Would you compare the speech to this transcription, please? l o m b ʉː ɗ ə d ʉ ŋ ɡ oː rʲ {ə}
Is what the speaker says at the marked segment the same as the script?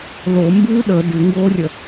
yes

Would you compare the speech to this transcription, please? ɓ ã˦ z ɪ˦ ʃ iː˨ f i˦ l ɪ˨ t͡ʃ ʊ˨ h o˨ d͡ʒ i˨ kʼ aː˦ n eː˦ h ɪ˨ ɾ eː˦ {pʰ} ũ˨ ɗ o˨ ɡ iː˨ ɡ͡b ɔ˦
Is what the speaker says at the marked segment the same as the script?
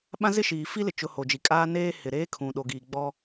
no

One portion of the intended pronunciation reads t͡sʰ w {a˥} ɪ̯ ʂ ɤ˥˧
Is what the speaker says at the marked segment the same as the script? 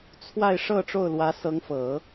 no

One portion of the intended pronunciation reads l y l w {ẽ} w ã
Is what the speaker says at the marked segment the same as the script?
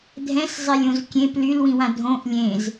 no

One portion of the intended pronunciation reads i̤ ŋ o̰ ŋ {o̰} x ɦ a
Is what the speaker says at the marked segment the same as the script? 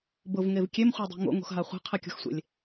no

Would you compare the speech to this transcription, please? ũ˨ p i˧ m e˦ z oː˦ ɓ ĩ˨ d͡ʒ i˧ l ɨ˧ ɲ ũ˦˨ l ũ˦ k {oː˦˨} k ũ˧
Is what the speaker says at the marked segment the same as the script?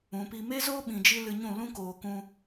no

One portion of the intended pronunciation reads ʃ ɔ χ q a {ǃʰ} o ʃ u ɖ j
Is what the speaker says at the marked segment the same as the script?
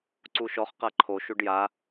yes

